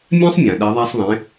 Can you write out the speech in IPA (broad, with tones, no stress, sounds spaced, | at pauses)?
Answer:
mʲ ã˥ sˤ mʲ ã˩ ɗ ɛ˩˧ ðˤ a˧ sˤ ðˤ ẽ˩˧